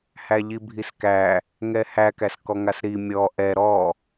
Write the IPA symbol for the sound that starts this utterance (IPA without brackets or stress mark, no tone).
h